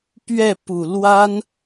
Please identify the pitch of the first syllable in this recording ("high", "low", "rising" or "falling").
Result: falling